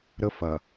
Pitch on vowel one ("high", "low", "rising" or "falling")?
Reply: high